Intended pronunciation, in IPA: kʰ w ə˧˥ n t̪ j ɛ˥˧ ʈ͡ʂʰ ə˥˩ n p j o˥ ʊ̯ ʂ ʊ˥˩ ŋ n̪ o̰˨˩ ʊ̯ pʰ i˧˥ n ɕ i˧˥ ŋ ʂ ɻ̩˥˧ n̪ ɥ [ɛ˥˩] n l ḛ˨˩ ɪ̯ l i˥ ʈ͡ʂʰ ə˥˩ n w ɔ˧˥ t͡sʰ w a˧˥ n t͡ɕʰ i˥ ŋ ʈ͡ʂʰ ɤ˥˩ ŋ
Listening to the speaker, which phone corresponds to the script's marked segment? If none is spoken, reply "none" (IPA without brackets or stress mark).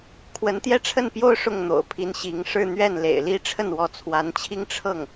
ɛ˥˩